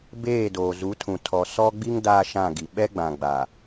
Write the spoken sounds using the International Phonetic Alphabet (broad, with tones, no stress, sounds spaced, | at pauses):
b eː˦˨ d oː˨ z u˨˦ tʰ ũ˨ tʰ ɔ˨ s ɔ˦ ɡ͡b i˦ ŋ d aː˦ ʃ ã˦˨ ɡ i˨ ɓ ɛ˦ ɡ͡b ã˨ ɡ͡b a˨